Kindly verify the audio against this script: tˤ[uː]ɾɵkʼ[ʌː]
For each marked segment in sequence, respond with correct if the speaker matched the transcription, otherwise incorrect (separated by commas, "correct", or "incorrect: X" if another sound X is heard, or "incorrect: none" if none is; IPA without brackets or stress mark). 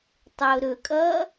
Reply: incorrect: ʊː, correct